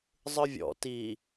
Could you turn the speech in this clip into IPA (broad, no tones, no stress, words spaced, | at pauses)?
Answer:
zˤɯvʲɔ̰ ti